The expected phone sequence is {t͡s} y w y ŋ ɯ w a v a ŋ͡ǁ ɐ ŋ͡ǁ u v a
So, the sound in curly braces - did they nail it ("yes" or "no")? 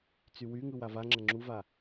yes